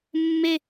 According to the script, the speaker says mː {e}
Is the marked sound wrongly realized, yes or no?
no